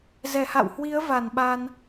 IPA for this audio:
z ɛ˧˩ h a̰˧˨ w h w i˨˦ ə̯ v a˧˩ n ɓ a˧ n

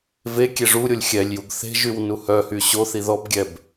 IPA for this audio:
v e kʲ e ʐ u ɾʲ o lʲ xʲ ɛ lʲ j u ɡ θ e̤ ʒ y w n u h œ h y ɕ o θ i ð ɔ b ɡʲ ɛ b

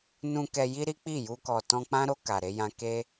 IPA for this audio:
n ũ˧ k ɛ˧ j i˦ ɾ i˦ k͡p i˦˨ j u˧ k ɔ˨ t ɔ̃˧ k͡p ã˦ ɾ o˧ k a˨ ɾ e˧ j ã˧ k e˦

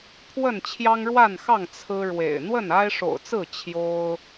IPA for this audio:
pʰ w ə˥˨ n t͡ɕʰ j ɑ˦ ŋ ɻ w a˥˨ n x ɑ˥˨ ŋ t͡sʰ ɹ̩˦ ɻ w ḛ˨˩ ɪ̯ n̪ w ə˥˨ n a˦ ɪ̯ ʂ o̰˨˩ ʊ̯ t͡s ɹ̩˥˨ t͡ɕʰ j o˦ ʊ̯

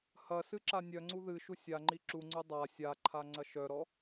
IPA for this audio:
h ɐ s ɨ ǁ a nʲ œ ŋ͡ǀ u ð ɨ ʃ u sʲ a ŋ͡ǃ i ǁ u ŋ͡ǀ u dˤ a sʲ a ǃʰ a ŋ͡ǀ ɐ ʃ œ ɾ ɔ

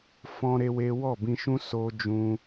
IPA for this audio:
f ɔ̃˦ ɾ e˦ w e˦ w ɔ˦˨ b ĩ˧ ʃ ũ˦ s o˦ d͡ʒ ũ˦

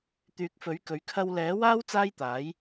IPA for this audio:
t̪ yː˨˥ k̚ f ɵ˨˥ ɥ k ɵ˨˧ ɥ kʰ ɐ˧ w l ɛː˨˥ w aː˥ w t͡s aː˥ j t̪ aː˨˥ j

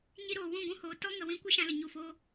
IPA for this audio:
ɲ i˧ ɾ oː˨ w ũ˦˨ ɡʷ ũ˦ h oː˨ t ɔ˦ ŋ ə˨ w ĩ˧ kʷ ɨ˦ ʃ ã˧ l ə˨ ɲ u˨ f oː˧

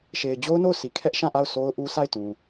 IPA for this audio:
ʃ e˨ ɪ̯ d͡ʑ o˦ ʊ̯ n o˦˨ ʊ̯ s i˨ kʰ ɛ˦ ʔ ʃ ã˦˨ ʔ a˦˨ ʊ̯ s o˦ ʊ̯ ʔ u˦ s a˦˨ ɪ̯ t ũ˨

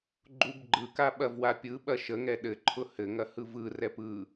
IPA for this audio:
ɡ͡ǃ u b ɡ͡ǃ ɯ k a ɓ ɐ v w a pʲ ɯ ɓ ɐ ʃ ə ŋ ɛ ɗ ɘ ǃʰ ʊ h ɘ ŋ ɐ h ɯ v ɯ r ɛ p ɯ

